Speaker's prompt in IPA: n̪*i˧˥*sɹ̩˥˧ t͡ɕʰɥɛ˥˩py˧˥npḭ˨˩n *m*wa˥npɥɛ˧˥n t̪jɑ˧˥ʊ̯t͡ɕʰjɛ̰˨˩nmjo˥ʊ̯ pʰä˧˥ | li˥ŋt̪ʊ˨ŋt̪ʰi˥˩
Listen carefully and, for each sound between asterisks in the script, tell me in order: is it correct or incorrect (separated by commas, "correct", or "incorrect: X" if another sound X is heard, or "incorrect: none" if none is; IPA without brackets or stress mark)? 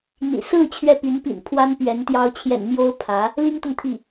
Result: incorrect: ḭ˨˩, incorrect: pʰ